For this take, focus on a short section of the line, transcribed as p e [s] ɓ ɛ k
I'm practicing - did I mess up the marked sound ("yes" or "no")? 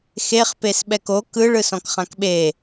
no